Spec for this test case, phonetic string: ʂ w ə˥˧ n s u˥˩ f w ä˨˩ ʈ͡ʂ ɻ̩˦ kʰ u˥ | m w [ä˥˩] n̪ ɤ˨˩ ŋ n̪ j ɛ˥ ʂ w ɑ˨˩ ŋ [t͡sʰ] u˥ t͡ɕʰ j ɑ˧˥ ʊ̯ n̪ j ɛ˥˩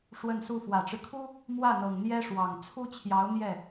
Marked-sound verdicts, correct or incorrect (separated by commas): correct, correct